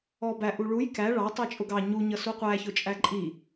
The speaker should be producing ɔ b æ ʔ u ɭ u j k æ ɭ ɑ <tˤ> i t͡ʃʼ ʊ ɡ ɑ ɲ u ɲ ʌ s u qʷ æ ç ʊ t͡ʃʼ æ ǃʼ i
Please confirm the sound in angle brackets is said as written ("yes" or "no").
yes